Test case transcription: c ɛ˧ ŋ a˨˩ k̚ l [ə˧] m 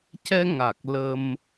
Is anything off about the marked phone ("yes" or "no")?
no